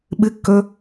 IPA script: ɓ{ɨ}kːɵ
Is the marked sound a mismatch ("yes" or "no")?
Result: no